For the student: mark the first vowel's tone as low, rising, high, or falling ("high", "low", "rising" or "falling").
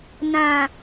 low